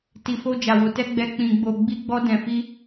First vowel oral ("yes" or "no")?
yes